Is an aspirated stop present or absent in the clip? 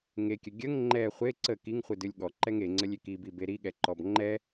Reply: absent